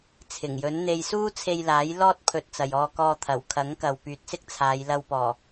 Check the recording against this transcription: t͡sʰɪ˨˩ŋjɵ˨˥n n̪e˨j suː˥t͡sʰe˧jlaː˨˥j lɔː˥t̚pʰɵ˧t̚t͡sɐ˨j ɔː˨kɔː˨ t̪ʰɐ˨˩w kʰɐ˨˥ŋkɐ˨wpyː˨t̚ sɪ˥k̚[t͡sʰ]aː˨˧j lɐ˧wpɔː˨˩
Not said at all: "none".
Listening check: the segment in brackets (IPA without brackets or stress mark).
t͡sʰ